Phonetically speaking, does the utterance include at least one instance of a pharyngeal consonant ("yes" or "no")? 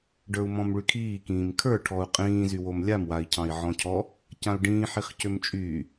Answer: yes